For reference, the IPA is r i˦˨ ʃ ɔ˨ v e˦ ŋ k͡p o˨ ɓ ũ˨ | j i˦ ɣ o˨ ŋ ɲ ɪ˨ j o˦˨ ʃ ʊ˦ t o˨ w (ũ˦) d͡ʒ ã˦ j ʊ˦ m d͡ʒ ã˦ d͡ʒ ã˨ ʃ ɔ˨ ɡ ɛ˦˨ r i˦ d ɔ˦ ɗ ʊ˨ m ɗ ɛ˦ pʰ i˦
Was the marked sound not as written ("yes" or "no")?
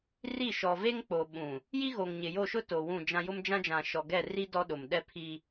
yes